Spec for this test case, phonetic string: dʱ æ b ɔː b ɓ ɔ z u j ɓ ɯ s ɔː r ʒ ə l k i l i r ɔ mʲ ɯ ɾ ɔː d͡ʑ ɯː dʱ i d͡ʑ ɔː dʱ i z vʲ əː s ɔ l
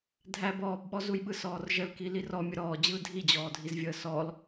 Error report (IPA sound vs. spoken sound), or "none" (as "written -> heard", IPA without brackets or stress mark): none